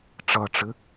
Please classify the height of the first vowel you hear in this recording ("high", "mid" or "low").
mid